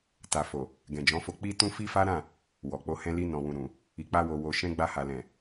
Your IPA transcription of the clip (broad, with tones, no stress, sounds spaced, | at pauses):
t a˨ f o˨ | ɡ ɛ̃˨ d͡ʒ ɔ̃˨˦ f o˧ k͡p i˦ t ũ˦ f i˦ f a˦ ɾ ã˦˨ | w ɔ˨ k͡p o˧ h ɛ̃˦ l i˧ n ɔ̃˨ w ũ˨ ɾ ũ˨ | i˨ k͡p a˧ w o˨ w o˨ ʃ ɛ̃˧ ɡ͡b a˧ h a˨ l ɛ̃˨